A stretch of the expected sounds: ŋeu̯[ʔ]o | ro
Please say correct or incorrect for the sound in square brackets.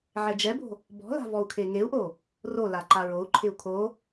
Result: correct